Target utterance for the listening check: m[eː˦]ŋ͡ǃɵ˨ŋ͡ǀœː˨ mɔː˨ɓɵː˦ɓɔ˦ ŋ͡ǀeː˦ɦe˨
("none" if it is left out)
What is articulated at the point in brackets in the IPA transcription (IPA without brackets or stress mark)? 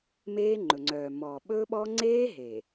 eː˦